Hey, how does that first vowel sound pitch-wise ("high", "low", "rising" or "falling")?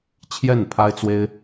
falling